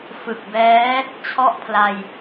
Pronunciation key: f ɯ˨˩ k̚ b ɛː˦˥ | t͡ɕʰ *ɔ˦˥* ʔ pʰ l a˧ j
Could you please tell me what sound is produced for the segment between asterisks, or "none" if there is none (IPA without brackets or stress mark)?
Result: ɔ˥˩